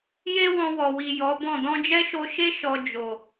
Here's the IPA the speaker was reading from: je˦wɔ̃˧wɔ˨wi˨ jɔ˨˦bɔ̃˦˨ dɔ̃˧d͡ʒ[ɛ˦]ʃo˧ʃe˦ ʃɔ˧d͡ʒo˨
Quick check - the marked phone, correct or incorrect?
correct